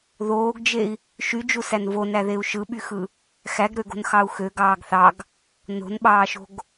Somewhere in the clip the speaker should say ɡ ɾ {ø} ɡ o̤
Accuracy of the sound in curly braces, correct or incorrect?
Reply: correct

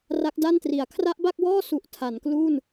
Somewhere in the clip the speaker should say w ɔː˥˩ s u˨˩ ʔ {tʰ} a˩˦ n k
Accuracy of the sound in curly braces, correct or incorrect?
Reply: correct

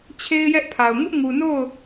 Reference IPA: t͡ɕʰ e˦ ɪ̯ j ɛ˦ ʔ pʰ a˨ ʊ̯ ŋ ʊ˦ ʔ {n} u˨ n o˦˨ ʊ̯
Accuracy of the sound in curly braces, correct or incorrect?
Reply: incorrect: ŋ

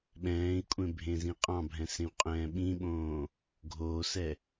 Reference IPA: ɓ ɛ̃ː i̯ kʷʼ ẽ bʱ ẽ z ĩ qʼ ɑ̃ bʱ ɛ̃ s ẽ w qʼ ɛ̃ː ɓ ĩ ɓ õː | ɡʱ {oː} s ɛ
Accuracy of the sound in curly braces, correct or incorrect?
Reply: correct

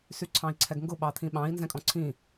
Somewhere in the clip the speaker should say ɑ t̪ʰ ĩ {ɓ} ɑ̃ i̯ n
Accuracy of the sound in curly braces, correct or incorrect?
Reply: correct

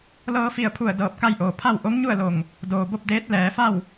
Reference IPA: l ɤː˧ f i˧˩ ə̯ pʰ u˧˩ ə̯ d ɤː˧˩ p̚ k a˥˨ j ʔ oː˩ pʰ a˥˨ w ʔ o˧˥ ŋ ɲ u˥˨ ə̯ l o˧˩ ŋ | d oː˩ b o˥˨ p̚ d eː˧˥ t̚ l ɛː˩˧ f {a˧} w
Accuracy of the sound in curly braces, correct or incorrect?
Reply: incorrect: a˥˨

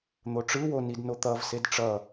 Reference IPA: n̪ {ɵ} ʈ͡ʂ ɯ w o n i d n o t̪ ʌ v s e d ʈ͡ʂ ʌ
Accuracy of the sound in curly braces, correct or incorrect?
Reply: incorrect: o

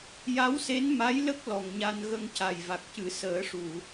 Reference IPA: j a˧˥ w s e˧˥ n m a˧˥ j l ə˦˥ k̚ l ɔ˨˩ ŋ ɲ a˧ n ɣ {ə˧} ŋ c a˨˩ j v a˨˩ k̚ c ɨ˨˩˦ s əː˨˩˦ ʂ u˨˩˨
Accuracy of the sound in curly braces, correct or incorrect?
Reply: correct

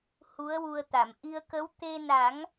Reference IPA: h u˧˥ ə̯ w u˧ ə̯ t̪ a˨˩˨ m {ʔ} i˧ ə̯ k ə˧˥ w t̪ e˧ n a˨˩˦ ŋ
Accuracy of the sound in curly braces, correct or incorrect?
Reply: correct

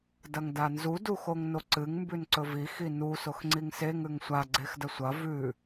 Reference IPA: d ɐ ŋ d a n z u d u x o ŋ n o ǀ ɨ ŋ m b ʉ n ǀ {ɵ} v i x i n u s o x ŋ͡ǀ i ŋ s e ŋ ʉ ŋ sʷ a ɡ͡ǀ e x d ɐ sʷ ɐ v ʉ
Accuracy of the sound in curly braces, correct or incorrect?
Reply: correct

